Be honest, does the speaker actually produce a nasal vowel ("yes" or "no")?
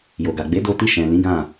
yes